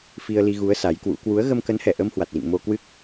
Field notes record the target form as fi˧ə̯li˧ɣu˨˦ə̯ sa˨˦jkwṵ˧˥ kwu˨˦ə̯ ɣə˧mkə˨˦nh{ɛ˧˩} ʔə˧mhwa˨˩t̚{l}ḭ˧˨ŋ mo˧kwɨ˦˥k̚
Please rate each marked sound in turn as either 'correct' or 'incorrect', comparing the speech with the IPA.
correct, correct

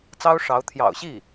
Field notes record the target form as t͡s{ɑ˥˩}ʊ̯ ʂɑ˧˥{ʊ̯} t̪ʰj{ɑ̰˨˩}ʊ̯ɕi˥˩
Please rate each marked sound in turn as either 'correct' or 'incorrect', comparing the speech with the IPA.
incorrect: ɑ˥, correct, correct

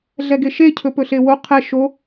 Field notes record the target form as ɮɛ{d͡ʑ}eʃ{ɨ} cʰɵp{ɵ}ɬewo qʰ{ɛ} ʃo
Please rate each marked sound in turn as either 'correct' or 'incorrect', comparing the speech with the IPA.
incorrect: ɡ, incorrect: e, correct, correct

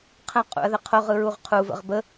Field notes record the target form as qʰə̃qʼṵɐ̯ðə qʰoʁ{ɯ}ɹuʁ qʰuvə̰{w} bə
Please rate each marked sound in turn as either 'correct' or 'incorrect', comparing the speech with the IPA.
correct, incorrect: ʁ

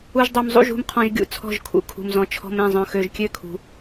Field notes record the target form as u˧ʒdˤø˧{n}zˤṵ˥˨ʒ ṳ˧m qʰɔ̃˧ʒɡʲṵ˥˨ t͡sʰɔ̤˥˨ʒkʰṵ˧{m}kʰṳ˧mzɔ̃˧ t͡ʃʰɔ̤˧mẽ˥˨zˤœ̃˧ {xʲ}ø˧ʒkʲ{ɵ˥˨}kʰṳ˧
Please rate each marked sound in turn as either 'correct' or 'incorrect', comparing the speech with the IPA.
incorrect: m, incorrect: none, incorrect: x, incorrect: ø˥˨

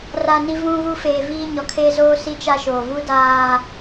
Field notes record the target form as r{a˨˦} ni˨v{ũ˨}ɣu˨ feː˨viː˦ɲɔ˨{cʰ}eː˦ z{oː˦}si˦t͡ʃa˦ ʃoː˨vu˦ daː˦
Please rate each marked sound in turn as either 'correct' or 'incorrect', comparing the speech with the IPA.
incorrect: a˨, correct, incorrect: kʰ, correct

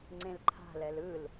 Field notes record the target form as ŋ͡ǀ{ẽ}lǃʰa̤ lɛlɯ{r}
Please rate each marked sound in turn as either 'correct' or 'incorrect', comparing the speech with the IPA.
correct, incorrect: l

